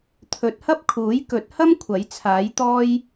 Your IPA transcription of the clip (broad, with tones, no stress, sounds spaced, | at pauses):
t̪ʰ ɵ˨˥ t̚ h ɐ˥ p̚ kʰ uː˨˥ j k ɵ˨˥ t̚ h ɐ˥ m kʷʰ ɐ˨˥ j t͡sʰ aː˨˥ j t̪ ɔː˥ j